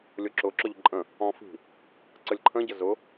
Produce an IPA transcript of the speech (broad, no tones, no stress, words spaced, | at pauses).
lʲʊǁʊǁʊʎ ǃʼə̃ | ɔ̃fi̤ | ǀəlʲǃʰə̃ɟə zʊ